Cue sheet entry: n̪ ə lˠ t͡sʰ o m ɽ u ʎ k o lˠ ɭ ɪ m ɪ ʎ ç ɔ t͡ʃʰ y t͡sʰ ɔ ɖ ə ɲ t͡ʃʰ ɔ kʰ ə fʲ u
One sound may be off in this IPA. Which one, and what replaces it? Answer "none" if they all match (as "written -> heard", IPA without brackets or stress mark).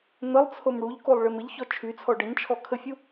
none